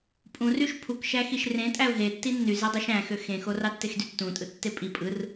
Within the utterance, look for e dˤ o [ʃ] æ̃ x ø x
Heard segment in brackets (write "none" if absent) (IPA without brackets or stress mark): ʃ